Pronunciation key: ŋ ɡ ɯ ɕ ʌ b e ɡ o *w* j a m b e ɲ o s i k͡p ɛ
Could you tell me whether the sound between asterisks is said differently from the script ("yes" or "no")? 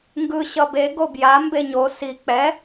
yes